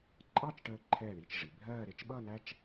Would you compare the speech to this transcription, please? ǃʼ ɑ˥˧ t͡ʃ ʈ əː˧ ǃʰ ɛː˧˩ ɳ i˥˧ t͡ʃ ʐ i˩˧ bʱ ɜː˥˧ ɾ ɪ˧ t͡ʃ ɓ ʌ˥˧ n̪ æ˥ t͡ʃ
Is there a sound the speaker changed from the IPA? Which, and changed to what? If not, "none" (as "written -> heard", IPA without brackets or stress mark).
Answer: none